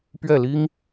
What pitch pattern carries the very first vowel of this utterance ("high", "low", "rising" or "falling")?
falling